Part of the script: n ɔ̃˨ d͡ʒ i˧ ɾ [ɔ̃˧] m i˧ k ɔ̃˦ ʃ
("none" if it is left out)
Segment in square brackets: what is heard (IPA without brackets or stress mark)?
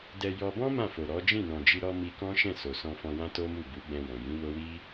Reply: ɔ˧